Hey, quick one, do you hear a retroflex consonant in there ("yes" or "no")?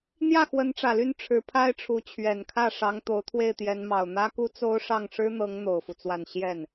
yes